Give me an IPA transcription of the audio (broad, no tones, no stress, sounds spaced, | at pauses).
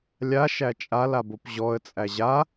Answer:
lʲ a ʃ æ t͡ʃʼ a l a b o p ʑ ɔ ə̯ t͡sʼ æ ʑ a